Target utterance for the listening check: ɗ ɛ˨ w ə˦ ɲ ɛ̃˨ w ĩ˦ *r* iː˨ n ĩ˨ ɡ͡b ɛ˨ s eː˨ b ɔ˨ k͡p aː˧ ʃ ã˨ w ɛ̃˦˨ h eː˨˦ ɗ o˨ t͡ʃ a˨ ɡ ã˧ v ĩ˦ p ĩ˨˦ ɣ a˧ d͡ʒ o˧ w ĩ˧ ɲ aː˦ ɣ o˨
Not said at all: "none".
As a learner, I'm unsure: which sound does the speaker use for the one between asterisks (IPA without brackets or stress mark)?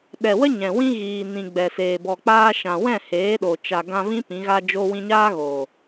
ɣ